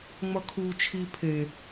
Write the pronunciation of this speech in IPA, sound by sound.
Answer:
ŋ͡mʌkʰu t͡ʃʰi pʰe

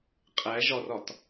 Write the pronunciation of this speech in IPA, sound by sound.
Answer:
qʼæʒɒrɒt

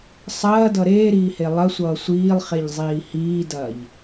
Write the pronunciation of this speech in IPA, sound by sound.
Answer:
sˤɐːdʌ ɾeːɾiːhe lˠɐsʷʌː sʷiːlˠχeʎzˤiː hiːdɐːʎ

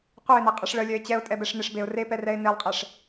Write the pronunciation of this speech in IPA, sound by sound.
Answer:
qʷœɪ̯nɛ qʼɛʂɭəlʲœɪ̯ t͡ɕɛʊ̯ tʼɛbɛʂneʂbeʊ̯ repɛrɛɪ̯ nelˠqʼɛʂ

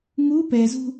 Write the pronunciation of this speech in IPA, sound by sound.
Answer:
ŋu pɛzṳ

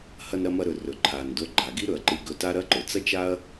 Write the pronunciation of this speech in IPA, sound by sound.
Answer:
hɐ˧nɾɐ˧mɐ˧ɾɵ˩ rɵ˩ǃʰa˩n do˧ɡ͡ǃa˩ɡi˥ ɾɵ˩ɐ̯ǃɨ˧ɡɵ˧ta˥ ɾɐ˥ǃɵ˩ t͡sɐ˥t͡ʃa˥ɐ̯

